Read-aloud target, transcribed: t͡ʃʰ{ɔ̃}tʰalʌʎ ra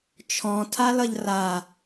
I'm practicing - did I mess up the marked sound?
no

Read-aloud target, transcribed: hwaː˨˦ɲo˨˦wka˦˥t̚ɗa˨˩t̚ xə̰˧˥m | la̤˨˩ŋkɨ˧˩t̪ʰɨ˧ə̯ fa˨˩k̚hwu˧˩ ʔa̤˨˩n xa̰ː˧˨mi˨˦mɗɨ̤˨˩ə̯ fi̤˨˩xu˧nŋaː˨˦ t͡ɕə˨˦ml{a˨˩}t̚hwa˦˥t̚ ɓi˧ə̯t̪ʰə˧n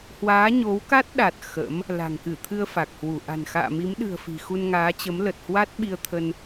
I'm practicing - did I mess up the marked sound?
yes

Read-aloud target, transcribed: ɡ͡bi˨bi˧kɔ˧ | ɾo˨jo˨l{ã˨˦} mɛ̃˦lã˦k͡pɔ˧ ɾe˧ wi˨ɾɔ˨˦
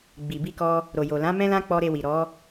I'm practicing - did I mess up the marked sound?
no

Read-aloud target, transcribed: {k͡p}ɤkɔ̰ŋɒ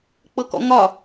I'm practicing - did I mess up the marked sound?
no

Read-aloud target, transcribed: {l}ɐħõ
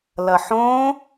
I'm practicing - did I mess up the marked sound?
no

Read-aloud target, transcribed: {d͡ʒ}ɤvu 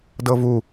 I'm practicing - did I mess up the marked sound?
yes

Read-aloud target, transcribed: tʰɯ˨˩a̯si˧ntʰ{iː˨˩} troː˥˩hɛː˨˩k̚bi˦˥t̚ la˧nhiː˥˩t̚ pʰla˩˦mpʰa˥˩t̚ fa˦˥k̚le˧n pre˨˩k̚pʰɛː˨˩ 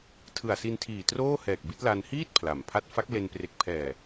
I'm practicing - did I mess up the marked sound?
no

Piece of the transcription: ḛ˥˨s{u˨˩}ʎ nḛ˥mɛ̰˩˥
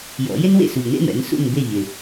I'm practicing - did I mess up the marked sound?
no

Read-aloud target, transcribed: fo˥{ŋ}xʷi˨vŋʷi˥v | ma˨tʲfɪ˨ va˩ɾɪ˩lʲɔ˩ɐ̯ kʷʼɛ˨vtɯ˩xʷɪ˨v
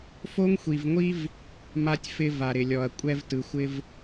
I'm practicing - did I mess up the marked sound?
no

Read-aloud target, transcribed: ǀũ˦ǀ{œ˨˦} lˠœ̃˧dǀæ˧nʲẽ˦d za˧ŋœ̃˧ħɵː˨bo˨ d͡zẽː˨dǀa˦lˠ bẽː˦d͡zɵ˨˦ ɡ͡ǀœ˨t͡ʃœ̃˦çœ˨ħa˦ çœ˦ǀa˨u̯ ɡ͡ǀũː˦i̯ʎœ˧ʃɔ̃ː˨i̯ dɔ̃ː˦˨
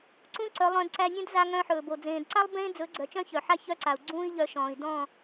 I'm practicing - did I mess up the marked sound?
no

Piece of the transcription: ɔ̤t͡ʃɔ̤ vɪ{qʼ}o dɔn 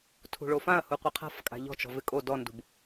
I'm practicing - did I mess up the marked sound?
yes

